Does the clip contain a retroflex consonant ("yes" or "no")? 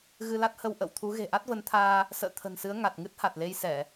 no